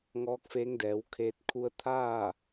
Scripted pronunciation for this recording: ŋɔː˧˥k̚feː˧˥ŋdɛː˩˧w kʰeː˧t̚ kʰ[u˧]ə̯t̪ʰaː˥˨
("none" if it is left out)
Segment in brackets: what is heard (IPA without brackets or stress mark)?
u˧